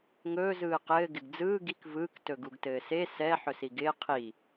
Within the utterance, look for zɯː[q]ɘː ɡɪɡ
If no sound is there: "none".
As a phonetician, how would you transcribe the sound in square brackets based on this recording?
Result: q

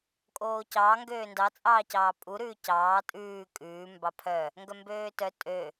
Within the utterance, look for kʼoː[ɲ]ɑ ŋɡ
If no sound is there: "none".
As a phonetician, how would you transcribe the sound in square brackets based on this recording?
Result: c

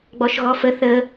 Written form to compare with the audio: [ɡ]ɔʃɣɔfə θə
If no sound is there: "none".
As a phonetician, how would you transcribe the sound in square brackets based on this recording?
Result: ɡ͡b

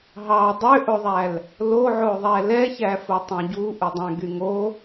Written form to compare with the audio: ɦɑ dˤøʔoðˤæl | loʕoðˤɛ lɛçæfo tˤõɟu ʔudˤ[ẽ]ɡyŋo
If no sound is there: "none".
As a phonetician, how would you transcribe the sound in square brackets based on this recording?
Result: ɛ̃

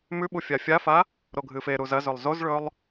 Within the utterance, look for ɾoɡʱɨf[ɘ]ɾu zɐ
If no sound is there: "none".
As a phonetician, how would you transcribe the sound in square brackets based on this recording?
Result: e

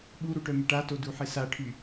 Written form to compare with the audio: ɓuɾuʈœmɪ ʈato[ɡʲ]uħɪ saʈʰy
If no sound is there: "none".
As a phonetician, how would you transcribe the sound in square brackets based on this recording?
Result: d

